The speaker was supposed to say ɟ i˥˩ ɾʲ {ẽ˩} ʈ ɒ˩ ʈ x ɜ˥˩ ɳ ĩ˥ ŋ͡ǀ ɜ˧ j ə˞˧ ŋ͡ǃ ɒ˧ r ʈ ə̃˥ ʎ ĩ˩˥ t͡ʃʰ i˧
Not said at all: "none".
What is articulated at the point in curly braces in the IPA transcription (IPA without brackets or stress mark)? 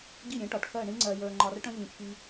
ẽ˩˥